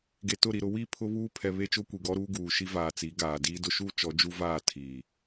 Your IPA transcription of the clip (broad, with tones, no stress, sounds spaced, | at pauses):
ɡ e˨ t ʊ˦˨ ɾ i˨ ɾ ʊ˦ w i˦˨ pʰ ʊ˦ β uː˦ pʰ ɛ˨ β e˦ t͡ʃ ʊ˦ kʷ i˨ ɡ ɔ˦ ɾ uː˦ ɡ uː˨ ʃ i˦ v aː˨ t͡s i˨˦ ɡ aː˨ d iː˦ d ʊ˦ ʃ u˦ t͡ʃ ɔ˨˦ d͡ʒ u˦ v aː˦˨ tʰ iː˨